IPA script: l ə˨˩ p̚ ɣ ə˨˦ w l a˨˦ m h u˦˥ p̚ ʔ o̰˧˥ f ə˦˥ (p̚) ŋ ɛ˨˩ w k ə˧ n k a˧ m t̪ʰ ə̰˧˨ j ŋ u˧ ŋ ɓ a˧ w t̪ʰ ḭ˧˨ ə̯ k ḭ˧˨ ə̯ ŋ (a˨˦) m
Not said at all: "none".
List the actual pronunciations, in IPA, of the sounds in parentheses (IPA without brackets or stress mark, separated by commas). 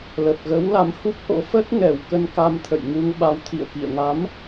t̚, a˨˦